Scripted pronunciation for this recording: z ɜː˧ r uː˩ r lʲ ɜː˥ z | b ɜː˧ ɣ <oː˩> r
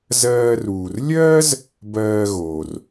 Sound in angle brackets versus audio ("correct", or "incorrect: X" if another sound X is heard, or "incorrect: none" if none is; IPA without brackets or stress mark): correct